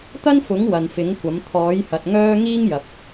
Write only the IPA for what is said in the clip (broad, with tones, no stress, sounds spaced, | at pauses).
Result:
t̪ ɐ˥ n f ʊ˨˥ ŋ w ɐ˨ n f ɪ˨˥ ŋ kʷ ɐ˨˥ m t̪ʰ ɔː˨˥ j h ɐ˨ t̚ ŋ œː˥ ŋ iː˥ ŋ j ɐ˨ p̚